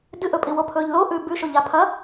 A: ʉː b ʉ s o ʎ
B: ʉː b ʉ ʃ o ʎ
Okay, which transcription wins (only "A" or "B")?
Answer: B